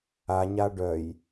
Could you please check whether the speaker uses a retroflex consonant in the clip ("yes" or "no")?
yes